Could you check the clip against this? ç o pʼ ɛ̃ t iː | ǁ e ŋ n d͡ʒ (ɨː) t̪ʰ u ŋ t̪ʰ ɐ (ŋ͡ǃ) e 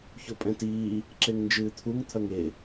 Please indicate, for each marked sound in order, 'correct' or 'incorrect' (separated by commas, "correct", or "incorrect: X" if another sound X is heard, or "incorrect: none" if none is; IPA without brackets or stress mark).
correct, incorrect: ŋ